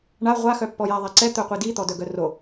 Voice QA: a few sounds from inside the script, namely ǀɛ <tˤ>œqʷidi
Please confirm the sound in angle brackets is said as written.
no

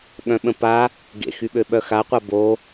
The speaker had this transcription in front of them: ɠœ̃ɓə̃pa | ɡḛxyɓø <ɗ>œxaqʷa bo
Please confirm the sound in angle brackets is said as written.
no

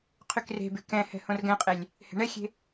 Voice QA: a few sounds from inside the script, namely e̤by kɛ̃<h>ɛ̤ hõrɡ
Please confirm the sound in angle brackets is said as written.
yes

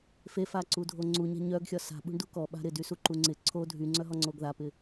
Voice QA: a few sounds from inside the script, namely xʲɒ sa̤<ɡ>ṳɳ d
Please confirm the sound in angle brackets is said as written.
no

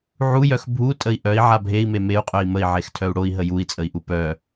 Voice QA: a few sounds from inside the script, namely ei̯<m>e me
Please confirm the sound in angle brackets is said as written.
yes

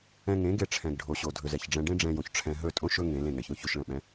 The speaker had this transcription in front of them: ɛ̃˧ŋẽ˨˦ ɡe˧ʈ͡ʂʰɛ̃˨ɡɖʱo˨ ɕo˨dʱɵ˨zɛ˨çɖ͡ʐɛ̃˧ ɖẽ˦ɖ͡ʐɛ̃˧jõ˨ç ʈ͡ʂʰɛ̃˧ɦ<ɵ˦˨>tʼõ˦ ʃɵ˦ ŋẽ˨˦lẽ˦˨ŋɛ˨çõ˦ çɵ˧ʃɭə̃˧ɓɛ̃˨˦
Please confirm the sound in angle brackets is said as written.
yes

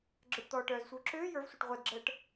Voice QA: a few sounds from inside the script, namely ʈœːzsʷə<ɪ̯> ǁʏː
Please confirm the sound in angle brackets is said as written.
no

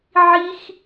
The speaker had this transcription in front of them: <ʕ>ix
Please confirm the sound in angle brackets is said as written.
yes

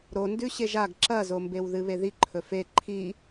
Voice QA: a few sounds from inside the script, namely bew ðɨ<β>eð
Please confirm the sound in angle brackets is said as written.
yes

